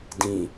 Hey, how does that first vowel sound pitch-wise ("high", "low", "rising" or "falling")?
low